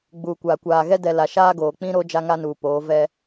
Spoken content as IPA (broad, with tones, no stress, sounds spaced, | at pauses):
ɡ͡b uː˨ kʷ aː˨ kʷ aː˨ ɣ ɛ˦ d ɛ˨ l a˨ ʃ aː˦ ɡ oː˨ k͡p ĩ˦ ɾ o˦ d͡ʒ a˦ ŋ a˦ n uː˨ p oː˨˦ v ɛ˦